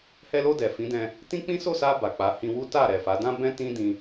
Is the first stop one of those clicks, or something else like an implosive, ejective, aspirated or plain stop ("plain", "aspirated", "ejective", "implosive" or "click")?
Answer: plain